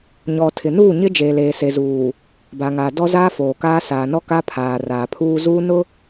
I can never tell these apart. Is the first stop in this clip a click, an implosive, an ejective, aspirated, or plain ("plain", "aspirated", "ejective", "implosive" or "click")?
aspirated